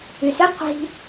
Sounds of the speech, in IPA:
y s ɨ qʷ i̤

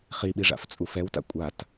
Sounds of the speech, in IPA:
χ i ɓ i ʐ a̰ f t͡sʼ u f ɛ w t a̰ kʷʼ a t

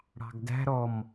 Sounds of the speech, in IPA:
ɽ ɑ̤ ɡ d æ̤ ɾ ɔ m

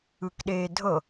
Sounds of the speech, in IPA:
ɯ k ɗ eː dʱ ɤ

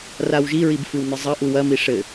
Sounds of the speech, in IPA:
r a w ʒ i ɹ i b f ɨ w n ɨ zˤ ɐ ʔ u w ɐ m i ʂ ɘ

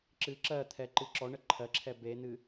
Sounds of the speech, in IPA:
ǁ ɨ ǁ ɜ t̪ʰ ɛ ǃ ɨ ǁ ɔ ɳ ə ǃʰ ɜ ǁʰ ɛ b e n̪ ɨ

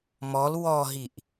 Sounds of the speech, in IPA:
m ɔ l w ɔ ɦ i ʔ

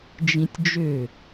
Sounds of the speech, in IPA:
d͡ʒ ĩ tʲ d͡ʒ ø

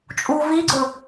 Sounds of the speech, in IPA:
t͡ʃʼ u v i ɡ͡ǀ ɵ

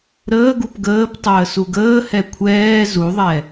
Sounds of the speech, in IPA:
ɾ əː ɡ u p ɡ əː p tˤ əː s u ɡ əː h ɛ kʷʰ ɛː z u ðˤ ɛ

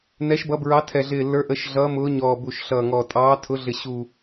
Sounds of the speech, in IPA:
n ɛ˨˦ ʃ b ʌ˨˦ b ɹ ɑ˨˦ tʰ ɛ˨˩ ɮ ɪː˨˩ lː ə˞˨˦ ʔ ə˨˦ ʃ ɮ ʌː˨˦ m ʊː˨˦ ɲ ɔː˨˩ b u˨˩ ʃ ɬ ʌː˨˩ ŋ ɔ˨˩ tʼ ɑː˨˦ tʰ ʊ˨˦ ɮ ɪ˨˩ ɕ u˨˩

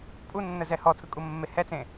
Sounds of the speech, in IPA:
pʼ u nː ə z ɛ h ɔ tʰ ɯ kʼ u mː e h ɛ t͡s ẽ

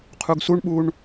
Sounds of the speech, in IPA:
qʰ u ɡ s u ɳ ɓ u ɳ

